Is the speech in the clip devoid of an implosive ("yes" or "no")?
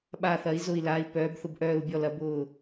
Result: no